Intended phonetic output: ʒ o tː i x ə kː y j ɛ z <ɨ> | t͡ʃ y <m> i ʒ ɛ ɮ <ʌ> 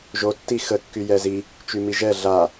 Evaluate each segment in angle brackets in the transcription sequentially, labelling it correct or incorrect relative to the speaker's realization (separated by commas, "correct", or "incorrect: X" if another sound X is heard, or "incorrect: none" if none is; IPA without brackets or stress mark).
incorrect: i, correct, incorrect: a